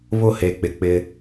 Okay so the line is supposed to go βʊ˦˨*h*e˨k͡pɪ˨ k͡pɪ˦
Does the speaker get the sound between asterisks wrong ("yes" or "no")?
no